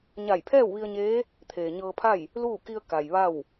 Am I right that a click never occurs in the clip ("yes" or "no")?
yes